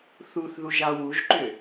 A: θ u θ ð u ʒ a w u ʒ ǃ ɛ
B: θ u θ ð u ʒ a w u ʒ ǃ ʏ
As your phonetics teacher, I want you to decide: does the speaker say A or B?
B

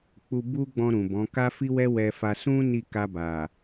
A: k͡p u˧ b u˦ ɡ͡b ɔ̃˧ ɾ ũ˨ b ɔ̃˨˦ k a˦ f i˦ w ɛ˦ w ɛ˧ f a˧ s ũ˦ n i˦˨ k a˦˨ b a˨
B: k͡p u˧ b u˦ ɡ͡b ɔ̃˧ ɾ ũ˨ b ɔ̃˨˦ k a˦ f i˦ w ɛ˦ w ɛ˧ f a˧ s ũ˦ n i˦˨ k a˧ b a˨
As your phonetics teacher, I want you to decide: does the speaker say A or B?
B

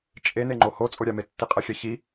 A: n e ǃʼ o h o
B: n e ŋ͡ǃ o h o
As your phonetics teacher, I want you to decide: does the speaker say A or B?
B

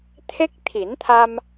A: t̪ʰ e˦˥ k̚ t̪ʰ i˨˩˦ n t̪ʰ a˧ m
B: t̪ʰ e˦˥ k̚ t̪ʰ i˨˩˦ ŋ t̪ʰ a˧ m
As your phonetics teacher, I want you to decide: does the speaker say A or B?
A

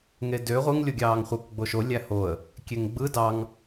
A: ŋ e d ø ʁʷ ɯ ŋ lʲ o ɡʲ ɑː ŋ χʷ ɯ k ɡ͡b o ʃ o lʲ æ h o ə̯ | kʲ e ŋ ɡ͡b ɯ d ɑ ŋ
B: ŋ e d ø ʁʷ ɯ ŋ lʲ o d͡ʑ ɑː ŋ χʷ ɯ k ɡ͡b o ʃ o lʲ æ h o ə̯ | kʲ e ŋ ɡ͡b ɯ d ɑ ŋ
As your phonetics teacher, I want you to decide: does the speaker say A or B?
A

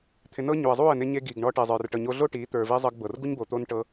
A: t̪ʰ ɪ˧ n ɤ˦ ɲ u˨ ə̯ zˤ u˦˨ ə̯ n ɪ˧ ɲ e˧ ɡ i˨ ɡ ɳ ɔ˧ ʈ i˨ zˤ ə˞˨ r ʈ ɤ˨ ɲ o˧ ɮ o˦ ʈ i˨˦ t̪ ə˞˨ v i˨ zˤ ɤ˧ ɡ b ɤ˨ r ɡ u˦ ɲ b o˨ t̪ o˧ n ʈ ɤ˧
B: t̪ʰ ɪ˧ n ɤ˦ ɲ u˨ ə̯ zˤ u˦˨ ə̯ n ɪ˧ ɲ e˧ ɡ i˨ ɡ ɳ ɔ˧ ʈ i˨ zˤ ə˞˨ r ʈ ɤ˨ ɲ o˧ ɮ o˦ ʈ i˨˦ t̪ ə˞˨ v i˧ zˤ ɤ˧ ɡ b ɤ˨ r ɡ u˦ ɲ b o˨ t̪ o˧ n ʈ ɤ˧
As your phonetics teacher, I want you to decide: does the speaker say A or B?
B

